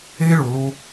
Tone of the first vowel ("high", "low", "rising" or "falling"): high